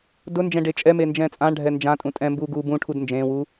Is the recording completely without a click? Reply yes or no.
yes